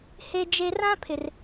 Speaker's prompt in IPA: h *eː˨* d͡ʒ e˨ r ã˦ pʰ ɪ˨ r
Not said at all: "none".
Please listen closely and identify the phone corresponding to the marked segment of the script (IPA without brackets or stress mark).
e˨